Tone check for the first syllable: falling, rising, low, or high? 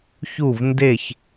falling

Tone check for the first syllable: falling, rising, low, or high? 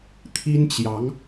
high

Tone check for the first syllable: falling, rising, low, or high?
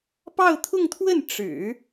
falling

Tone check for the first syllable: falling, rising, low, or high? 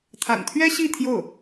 low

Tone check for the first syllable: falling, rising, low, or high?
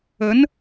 rising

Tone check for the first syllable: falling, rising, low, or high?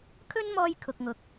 high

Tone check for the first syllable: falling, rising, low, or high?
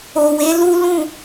low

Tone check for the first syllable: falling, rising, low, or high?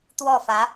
falling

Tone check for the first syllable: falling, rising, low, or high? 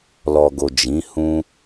low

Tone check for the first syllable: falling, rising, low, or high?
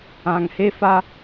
low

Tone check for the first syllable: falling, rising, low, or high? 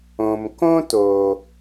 low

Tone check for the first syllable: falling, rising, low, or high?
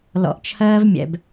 low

